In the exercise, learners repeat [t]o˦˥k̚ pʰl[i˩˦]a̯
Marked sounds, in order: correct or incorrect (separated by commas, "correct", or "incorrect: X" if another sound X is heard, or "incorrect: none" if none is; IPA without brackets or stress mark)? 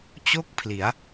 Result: incorrect: t͡ɕ, correct